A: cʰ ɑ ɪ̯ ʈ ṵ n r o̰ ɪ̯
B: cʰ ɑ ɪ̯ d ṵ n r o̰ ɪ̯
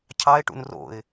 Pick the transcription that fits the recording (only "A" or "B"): A